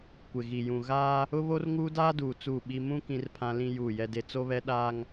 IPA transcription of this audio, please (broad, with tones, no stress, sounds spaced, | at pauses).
kʷ ɪ˨ ɣ i˨ j ũ˨ ɣ aː˦ | ʊ˦ β o˦ r ŋ uː˦ d aː˦ d uː˨ t͡s uː˦˨ ɓ i˦ m ũ˦ k ĩ˦ r pʰ ã˦ l ĩ˦ j uː˦˨ j ɛ˦ d e˦ t͡s o˦ β ɛ˦ ɗ aː˦ ŋ